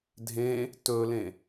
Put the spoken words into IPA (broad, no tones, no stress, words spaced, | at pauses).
dʱẽ | tɵlẽ